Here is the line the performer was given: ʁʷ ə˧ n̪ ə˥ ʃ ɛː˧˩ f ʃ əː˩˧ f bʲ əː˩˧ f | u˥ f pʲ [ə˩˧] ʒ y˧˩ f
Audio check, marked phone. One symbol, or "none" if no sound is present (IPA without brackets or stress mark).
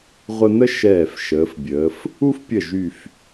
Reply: ə˧˩